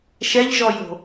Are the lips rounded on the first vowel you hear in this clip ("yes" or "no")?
no